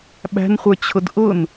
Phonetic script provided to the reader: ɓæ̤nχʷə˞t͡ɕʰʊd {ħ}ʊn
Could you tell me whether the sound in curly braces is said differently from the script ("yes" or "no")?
yes